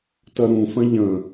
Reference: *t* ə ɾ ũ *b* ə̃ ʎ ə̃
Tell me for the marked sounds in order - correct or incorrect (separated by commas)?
correct, incorrect